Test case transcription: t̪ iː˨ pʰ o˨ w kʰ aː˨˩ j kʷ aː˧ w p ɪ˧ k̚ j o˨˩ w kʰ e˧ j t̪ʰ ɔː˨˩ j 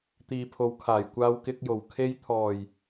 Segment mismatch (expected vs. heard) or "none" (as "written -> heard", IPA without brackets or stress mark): p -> k